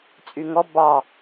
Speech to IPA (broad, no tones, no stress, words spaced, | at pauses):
t͡sʼyŋɔ bɑ